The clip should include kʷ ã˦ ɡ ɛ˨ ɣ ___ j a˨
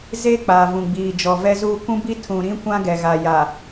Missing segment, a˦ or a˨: a˨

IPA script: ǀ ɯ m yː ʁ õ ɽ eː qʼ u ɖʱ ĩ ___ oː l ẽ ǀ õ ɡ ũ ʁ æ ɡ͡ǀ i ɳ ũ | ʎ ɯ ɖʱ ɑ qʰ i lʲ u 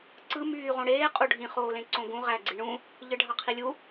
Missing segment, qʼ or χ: χ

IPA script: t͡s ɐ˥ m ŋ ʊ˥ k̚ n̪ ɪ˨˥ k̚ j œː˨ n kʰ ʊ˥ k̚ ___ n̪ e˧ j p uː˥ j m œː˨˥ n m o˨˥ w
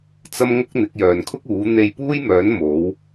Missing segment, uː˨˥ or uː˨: uː˨˥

